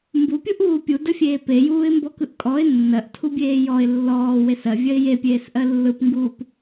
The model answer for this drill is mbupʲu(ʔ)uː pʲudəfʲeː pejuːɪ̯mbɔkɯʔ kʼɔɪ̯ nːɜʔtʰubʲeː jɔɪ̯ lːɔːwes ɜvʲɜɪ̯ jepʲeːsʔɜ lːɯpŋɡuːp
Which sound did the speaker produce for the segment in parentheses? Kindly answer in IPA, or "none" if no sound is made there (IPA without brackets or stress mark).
ʔ